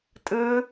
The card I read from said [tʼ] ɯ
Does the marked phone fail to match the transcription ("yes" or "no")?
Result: no